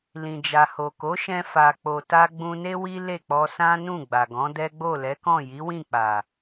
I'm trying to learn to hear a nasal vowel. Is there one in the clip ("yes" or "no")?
yes